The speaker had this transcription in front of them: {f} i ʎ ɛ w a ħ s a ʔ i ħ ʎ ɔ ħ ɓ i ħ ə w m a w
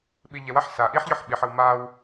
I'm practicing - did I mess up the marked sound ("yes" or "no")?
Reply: yes